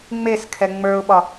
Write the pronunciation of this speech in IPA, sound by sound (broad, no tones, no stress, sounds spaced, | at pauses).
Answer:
ŋ͡m e s kʰ ɛ ŋ͡m ə˞ ʊ̯ ɓ ɒ